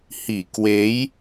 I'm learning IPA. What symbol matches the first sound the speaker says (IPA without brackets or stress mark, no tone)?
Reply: h